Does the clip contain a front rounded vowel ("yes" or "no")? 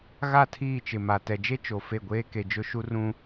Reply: no